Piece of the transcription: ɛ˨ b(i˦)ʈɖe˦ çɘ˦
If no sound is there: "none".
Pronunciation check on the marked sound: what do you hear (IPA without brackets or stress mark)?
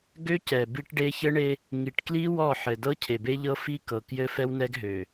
i˦